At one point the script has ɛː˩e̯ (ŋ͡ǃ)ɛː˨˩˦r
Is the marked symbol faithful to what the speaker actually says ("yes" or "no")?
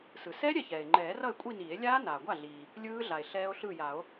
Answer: yes